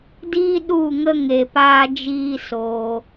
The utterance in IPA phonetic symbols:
d iː˦ ɗ u˦˨ ŋ ə˦ ŋ e˨ p aː˧ d͡ʒ iː˧ s oː˧

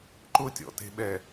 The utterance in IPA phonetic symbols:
ǃ ʊ tʲ ɔ̰ t e̤ ɓ ɛ

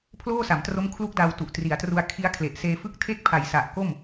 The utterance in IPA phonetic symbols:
pʰ l oː˥˩ s a˩˦ m t r o˦˥ m kʰ l u˦˥ k̚ d a˧ w t u˨˩ ʔ t r i˩˦ a̯ t r u˧ a̯ kʰ i˦˥ a̯ kʰ l e˨˩ ʔ s eː˧ f ɯ˥˩ k̚ tʰ e˦˥ k̚ pʰ a˩˦ j s a˨˩ ʔ k o˥˩ m

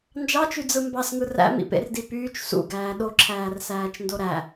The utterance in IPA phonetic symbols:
n d͡ʒ ɑ t͡ʃ y d͡z ɯ m b ɑ s ŋ ɯ r æ̰ m ḭ p ḛ r d i p yː t͡ʃ s ṵ ɡ æː ɗ o ǁʰ æː r s æː t͡ʃ n d o ɾ æ

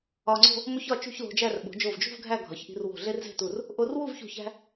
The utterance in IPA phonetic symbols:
ɒ˧ ŋ͡ǀ o̤˥˧ | m o˥ ç ɒ˥˧ t͡ʃ ṳ˥˧ ç l o̤˧ d͡ʒ æ˥˧ r ɓ o̤˩˧ d͡ʒ o˧˩ v d͡ʒ ṳ˥˧ v ɡʱ æ˥˧ ɡʱ ɒ˩˧ ç ʔ i̤˧ r w o̤˧˩ ɮ e˥ r z e̤˥˧ t u˧˩ r | ʔ o˧ r w u˥˧ v ç ṳ˧˩ ç æ̤˧

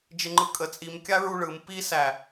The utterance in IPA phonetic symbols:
d͡ʒ ɪ ŋ͡ǃ ɯ kʼ ə t͡sʼ i m kʲ a ɹ u ɭ ɯ m p i s æ

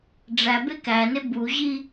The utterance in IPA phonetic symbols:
ɖ͡ʐ æ b e k æ n e b u ʑ i

